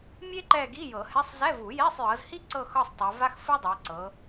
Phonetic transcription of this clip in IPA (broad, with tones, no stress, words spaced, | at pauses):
mʲe˥ǃɛ˦˨ɡi˧˥˧ jɤ˨˩˦hɛ˧˥˧sˤ zɛ˧˥˧vu˨˩˦jɛ˧˥˧sˤjɤ˨˦z hi˥ǀɤ˦˨xɤ˦˨sˤ tˤa˨˦va˥x fɯ˥dˤɛ˨˦ ǀɤ˨˦